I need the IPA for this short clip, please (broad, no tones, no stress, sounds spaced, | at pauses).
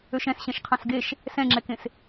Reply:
ø ʃ ɛ̃ s ɕ ɛ̃ ʃ qʰ ɑ̃ s ɡ e ʃ | s ɛ̃ ŋ͡ǁ ɛ k ẽ s